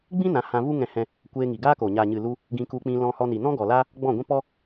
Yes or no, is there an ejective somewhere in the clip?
no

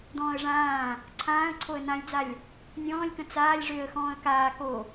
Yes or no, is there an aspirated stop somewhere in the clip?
yes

